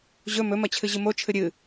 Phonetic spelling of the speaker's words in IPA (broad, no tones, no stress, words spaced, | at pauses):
ʑɵ mɵmɐt͡ɕʰɨ ʑɨmo t͡ʃʰɨɾʲɨ